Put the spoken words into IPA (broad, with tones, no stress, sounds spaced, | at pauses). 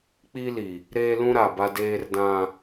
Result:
k͡p i˦ l i˨ | ɾ eː˦ l ũ˦ ɾ a˨ b a˦ d eː˦ r d ã˦